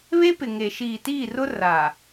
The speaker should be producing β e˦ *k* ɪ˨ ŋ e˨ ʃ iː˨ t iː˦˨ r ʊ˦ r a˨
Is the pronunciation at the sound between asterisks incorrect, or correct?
incorrect: p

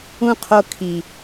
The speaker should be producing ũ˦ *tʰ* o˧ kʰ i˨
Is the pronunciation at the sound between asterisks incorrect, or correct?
incorrect: qʰ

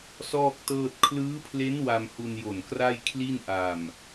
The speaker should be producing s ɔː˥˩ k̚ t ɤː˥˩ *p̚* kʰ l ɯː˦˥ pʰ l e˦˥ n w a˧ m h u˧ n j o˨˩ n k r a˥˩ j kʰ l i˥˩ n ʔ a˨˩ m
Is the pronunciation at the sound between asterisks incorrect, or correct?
incorrect: t̚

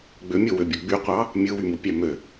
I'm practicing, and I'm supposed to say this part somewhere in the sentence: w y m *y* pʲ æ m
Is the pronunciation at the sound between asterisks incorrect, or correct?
incorrect: u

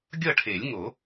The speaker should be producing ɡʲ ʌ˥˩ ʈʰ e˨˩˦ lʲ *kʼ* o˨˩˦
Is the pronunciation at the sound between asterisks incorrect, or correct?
incorrect: ŋ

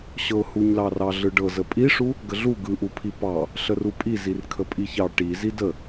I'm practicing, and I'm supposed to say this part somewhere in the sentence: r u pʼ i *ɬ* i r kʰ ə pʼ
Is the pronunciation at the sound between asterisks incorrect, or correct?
incorrect: z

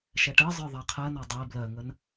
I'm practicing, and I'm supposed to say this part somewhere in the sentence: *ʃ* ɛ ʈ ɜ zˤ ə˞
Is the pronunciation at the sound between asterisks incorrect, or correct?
correct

